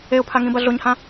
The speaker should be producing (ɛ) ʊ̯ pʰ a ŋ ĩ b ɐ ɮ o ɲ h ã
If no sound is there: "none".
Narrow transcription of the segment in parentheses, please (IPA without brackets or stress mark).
e